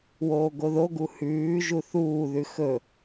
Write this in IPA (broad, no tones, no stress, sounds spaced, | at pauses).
w oː ɡ o ð o ɡ u h ʉː ʒ u θ uː ð ʉ x ɵ